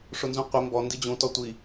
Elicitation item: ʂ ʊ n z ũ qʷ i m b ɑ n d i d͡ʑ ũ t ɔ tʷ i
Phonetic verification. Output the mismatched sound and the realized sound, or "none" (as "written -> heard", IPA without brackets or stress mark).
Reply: ɑ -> ɔ